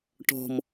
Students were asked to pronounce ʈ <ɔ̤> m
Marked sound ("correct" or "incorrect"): correct